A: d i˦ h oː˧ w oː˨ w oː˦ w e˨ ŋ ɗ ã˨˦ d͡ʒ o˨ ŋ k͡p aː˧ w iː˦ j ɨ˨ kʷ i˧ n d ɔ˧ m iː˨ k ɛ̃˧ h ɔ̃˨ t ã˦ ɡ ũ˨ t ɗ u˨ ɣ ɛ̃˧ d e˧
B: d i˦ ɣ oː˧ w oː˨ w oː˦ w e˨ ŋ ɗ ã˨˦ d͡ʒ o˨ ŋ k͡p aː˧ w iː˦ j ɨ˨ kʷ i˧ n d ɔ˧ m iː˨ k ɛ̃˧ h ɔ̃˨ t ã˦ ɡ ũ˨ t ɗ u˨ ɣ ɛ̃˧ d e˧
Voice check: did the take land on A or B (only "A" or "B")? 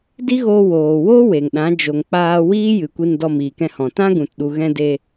B